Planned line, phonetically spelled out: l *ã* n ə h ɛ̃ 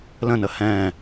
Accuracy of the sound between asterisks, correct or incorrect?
incorrect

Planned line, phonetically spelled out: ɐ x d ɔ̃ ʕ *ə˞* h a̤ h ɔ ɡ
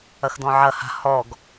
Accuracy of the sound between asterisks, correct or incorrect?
incorrect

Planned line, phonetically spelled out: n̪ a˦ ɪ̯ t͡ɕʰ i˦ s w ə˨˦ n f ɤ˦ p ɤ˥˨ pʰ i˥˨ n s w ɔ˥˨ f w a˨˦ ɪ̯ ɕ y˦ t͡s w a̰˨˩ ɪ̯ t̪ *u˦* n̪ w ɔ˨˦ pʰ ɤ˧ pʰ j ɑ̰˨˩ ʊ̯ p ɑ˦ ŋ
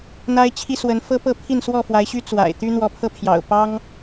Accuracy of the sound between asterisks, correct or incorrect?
incorrect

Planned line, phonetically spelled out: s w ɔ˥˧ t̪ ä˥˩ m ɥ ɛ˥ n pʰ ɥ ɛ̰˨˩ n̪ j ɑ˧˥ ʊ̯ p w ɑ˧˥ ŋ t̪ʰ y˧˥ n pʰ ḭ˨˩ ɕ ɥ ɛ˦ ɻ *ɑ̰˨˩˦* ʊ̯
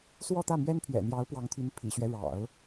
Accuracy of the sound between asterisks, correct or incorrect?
correct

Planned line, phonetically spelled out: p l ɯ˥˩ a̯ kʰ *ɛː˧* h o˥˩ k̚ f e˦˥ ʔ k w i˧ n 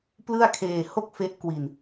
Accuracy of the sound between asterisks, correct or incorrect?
incorrect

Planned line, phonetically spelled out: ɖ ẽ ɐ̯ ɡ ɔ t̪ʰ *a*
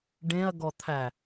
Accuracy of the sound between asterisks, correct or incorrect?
incorrect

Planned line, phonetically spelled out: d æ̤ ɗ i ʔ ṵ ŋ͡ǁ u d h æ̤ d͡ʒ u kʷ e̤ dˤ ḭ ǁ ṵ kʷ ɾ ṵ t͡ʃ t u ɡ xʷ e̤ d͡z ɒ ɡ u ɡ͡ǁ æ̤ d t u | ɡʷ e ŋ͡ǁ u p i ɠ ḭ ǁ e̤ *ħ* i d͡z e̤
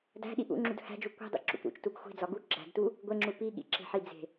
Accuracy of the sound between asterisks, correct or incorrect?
correct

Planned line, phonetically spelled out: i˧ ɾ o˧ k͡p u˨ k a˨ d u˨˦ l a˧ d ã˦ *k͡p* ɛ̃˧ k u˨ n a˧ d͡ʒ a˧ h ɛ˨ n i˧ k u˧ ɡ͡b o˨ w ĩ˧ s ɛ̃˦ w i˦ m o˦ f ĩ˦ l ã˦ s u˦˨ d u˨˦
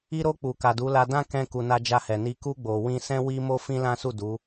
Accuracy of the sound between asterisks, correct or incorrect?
incorrect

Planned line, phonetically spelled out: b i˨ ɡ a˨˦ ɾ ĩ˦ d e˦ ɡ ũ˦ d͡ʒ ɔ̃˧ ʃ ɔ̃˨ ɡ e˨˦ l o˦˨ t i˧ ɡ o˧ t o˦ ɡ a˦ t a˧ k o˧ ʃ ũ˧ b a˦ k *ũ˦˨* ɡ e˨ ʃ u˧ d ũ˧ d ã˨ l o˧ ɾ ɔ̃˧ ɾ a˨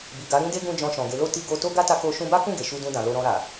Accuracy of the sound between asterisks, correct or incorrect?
correct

